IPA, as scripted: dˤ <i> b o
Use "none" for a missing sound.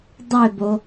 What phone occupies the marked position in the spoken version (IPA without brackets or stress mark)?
e